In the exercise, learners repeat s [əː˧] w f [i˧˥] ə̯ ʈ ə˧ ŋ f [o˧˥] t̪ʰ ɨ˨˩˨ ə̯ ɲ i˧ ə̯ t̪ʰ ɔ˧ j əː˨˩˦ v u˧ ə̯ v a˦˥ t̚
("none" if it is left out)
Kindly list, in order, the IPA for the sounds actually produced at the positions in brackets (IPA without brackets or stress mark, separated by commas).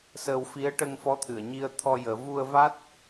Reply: əː˧, i˧˥, ɔ˧˥